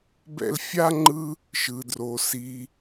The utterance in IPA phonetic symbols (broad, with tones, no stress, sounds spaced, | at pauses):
b ɛ̰˥ l fʲ a˥ ŋ͡ǃ ɯ˥ | ʃ ɯ˩ d r o˩ s i˩